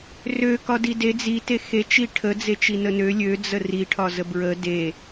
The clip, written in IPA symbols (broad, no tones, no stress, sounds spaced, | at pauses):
r ø k ɒ d i d e d͡z i t e x e t͡ʃ i ʈʰ ə d͡z e t͡ʃ i n ə n ø lʲ ø d͡z ə r i ʈʰ ɒ z ə b ɹ ə d e